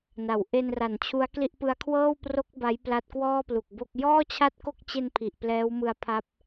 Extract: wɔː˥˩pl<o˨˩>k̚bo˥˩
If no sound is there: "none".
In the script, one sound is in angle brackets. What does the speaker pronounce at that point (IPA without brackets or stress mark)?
u˨˩